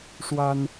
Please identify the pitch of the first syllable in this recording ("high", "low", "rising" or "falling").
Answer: high